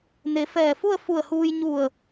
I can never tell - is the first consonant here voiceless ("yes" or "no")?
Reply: no